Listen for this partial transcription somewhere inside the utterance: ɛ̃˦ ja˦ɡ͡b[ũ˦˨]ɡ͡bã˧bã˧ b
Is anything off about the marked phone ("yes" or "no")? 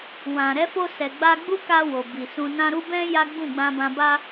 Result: no